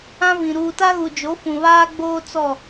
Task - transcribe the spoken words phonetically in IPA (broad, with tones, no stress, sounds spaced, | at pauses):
ã˦ v ĩ˨ ɾ uː˨ t a˦ ɣ u˨ d͡ʒ o˨˦ f ũ˨ β aː˦ ɡ͡b oː˦ t͡s ɔ˦˨